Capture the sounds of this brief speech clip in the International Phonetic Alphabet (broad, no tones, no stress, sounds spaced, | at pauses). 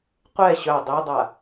qʷ ɛ ɕ œ dˤ i dˤ a